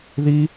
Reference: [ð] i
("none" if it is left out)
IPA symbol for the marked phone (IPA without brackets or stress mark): ð